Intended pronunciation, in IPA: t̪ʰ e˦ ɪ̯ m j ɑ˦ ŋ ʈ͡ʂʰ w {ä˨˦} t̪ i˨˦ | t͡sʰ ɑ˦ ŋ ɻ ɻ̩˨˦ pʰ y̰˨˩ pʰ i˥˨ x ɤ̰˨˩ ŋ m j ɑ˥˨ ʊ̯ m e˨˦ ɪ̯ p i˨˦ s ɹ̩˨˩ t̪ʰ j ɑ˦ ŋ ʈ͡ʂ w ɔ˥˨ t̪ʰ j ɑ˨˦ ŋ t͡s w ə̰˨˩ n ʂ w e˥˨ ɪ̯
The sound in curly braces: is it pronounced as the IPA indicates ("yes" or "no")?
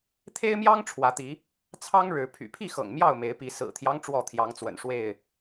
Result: yes